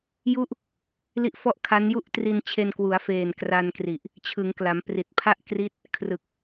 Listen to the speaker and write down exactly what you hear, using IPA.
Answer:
j u˦˥ ʔ | l i˦˥ ʔ f ɔ˥˩ ʔ kʰ a˦˥ n j u˥˩ ʔ t r i˧ n t͡ɕʰ e˧ n k w u˩˦ a̯ f eː˨˩ n k r a˧ n k r i˨˩ ʔ | t͡ɕʰ ɯ˩˦ ŋ k l a˩˦ m p r i˨˩ t̚ pʰ a˥˩ ʔ k r i˦˥ t̚ | kʰ r ɯ˨˩ k̚

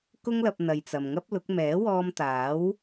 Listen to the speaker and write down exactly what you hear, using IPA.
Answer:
k ʊ˥ ŋ l ɐ˧ p̚ n̪ ɐ˧ j t͡s ɐ˨ m ŋ ɐ˥ p̚ l ʊ˨˥ k̚ m ɛː˨˥ w ɔː˧ m t̪ aː˨˥ w

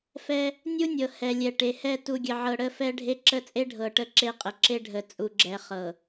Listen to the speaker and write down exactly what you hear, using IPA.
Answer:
f ɛ˦ | nʲ u˦ nʲ ɤ˨ h ɛ˨ lʲ ɛ˨ ʈ e˨ h ɛ˦˨ t u˨ ɡʲ ə˨ ʕ ɤ˨ ɽ ə˦˨ f ɛ˦ ɖʱ e˦ ǁ ə˦ t͡sʼ e˦ ɖʱ ɤ˨ ʈ ə˦ ǁ e˦ qʼ ə˨ ǁ e˦ ɖʱ ə˨ t͡sʼ u˨ ɡ͡ǁ ɛ˨ χ ɤ˨

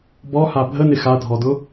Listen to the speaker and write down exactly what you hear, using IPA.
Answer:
b ɔ h a bʱ ə n ɪ x a dʱ ɔ d ʊ

